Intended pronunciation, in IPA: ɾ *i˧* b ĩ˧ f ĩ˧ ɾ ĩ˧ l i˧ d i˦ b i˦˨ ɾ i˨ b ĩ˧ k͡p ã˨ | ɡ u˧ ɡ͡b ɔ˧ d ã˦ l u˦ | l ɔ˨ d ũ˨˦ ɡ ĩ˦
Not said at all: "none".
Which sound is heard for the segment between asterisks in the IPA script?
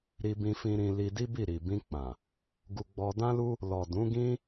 i˧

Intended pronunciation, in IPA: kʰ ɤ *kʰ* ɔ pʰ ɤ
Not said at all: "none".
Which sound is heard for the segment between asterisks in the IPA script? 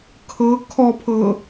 kʰ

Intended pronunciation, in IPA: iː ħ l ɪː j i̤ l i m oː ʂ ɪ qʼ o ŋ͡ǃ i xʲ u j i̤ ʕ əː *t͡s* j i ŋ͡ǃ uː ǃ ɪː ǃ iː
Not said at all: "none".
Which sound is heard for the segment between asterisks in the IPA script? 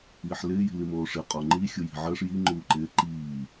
ʂ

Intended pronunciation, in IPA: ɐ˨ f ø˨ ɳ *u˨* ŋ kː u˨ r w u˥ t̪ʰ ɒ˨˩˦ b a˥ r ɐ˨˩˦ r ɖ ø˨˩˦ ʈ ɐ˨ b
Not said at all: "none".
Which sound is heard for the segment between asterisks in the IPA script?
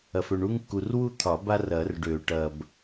u˥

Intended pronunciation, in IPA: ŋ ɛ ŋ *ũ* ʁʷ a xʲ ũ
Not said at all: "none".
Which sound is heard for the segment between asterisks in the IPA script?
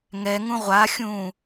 ũ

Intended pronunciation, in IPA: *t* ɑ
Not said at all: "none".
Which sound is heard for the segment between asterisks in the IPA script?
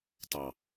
t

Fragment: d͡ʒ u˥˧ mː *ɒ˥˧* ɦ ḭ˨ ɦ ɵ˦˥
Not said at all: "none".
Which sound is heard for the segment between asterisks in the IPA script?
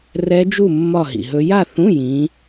ɒ˥˧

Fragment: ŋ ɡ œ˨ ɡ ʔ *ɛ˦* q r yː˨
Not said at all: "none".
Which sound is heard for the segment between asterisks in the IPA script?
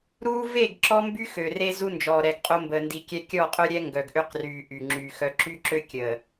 ø˦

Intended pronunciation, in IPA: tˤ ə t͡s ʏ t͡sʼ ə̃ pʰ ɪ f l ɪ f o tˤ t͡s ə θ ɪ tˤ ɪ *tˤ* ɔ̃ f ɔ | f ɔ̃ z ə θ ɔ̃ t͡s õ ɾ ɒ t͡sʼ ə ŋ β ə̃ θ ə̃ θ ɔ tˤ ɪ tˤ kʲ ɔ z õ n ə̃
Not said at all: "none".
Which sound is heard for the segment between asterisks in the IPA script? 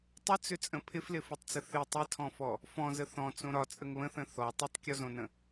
tʰ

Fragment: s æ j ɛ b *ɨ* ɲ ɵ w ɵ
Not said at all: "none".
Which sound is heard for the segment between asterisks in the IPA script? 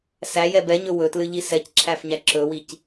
ɛ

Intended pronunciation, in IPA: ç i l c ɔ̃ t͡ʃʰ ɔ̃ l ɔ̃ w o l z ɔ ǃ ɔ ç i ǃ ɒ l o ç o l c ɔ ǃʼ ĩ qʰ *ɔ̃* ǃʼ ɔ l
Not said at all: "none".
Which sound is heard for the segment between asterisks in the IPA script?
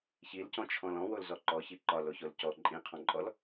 ɔ̃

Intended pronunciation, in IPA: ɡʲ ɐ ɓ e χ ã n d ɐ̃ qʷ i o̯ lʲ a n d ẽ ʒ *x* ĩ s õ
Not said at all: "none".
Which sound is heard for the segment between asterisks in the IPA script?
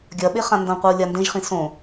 χ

